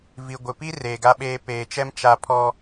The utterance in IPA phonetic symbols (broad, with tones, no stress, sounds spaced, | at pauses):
v i˨ ɡʷ ɪ˨ p i˦ r eː˨ ɡ a˦ ɓ eː˦ p eː˨ t͡ʃ ɛ˦ m t͡ʃ a˦ pʰ ɔ˦